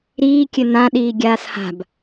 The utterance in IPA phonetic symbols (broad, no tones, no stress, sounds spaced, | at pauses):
ɾ iː kʲ ɘ n ã ɗ iː ɡʲ aː s h a̤ b